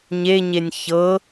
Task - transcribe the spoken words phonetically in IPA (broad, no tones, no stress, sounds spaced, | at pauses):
ɲ e ɲ e nʲ ç ɤ